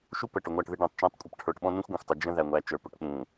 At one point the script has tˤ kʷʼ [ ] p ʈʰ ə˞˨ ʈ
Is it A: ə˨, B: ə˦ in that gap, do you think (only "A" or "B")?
B